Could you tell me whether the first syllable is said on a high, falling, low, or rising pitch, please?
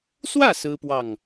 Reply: falling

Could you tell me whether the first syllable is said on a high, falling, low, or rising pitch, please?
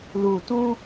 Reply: low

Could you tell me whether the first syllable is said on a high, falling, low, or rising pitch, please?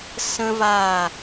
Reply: high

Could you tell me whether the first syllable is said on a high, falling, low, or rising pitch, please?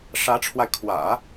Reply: rising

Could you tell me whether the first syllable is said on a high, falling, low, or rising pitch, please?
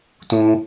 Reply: high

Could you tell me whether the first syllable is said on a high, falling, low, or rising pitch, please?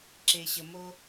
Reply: low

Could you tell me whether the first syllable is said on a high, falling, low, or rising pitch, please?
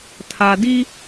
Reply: low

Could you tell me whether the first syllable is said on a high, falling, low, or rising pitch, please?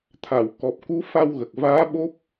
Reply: low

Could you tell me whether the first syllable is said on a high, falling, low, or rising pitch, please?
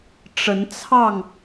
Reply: rising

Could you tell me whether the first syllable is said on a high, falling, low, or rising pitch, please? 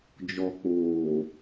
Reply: low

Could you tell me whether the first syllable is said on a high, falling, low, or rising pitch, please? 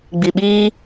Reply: low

